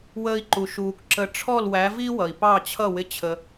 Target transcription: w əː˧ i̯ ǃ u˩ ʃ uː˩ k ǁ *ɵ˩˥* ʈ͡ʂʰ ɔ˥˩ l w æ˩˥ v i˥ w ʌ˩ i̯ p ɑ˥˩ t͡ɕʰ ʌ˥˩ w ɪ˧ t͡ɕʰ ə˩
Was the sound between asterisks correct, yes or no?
no